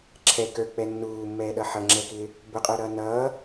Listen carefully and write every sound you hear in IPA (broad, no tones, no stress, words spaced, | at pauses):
ǁʰɛ kə˞k͡pɛ nːuːmːɛːɗʌ ħʌŋ͡ǁɛkɪː | bʊqʼə˞ɾʌː nʌː